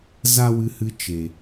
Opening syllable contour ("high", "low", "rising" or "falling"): high